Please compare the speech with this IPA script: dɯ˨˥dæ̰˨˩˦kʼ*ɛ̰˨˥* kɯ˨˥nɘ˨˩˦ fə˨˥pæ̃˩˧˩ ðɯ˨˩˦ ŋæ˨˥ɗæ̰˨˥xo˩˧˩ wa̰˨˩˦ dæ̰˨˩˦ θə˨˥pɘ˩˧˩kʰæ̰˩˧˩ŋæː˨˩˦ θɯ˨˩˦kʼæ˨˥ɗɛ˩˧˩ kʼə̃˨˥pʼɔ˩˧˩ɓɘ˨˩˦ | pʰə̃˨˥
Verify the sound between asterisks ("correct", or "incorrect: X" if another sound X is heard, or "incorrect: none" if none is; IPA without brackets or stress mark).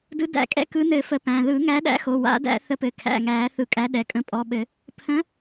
correct